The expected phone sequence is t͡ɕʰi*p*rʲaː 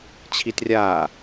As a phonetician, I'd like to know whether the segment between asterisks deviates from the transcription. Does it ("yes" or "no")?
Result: yes